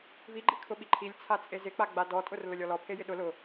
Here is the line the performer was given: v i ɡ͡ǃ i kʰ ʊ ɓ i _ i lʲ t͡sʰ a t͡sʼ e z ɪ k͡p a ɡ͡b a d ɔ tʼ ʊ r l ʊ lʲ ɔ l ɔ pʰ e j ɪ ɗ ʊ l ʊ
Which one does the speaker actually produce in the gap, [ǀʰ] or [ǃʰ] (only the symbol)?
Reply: ǃʰ